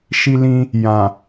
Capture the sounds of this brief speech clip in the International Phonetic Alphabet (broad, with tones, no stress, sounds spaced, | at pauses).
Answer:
ʃ i˧ l ĩ˧ | j ã˨